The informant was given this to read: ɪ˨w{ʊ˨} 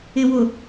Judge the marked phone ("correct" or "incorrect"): correct